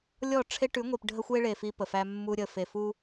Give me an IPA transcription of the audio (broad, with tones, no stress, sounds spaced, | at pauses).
lʲ ɔ˦˨ ʈ͡ʂʰ e˦ ʈ ʉ˨˦ ŋʷ i˨ p ɖʱ ə˦ xʷ e˦ ɭ e˨ f i˦ p ə˨ f æ˦ mː u˦ ɾʲ ə˨ f e˨ f u˦